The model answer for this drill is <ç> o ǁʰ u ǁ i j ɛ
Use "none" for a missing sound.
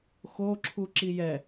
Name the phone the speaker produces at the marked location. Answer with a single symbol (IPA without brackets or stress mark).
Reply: x